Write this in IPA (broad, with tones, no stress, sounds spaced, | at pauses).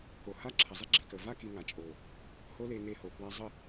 k o˨ h a˦ ǁʰ ɐ˨ zˤ i˦ ɡ͡ǁ i˨ k ə˨ v a˦ k i˧ ŋ a˨ t͡ʃʼ o˨ | h o˦ l e˧ ŋ e˧ h o˨ k w a˧ zˤ ə˦˨